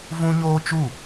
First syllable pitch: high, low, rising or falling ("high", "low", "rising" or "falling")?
high